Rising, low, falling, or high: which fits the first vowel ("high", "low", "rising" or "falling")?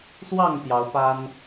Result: falling